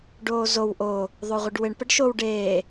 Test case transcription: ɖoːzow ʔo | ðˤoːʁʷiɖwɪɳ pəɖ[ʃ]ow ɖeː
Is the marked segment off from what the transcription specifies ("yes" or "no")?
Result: no